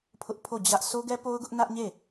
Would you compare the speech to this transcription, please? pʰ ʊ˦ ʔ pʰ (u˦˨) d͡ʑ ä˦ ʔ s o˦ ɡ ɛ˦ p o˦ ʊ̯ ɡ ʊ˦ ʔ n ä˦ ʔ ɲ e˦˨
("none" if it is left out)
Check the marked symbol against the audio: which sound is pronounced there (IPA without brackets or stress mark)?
o˦˨